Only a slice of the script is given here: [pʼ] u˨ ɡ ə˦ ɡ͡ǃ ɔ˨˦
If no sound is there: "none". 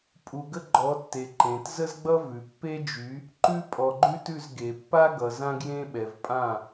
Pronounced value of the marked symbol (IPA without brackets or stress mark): pʼ